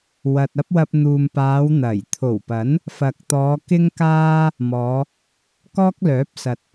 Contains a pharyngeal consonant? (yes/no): no